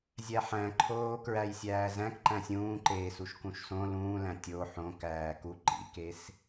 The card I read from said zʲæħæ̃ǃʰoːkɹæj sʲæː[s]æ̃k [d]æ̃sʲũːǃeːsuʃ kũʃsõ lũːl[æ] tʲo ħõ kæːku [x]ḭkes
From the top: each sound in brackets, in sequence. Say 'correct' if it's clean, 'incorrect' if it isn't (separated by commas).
incorrect, incorrect, incorrect, incorrect